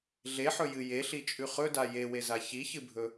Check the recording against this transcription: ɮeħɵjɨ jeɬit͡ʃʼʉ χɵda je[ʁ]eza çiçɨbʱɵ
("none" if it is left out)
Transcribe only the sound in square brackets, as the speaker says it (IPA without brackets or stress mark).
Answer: w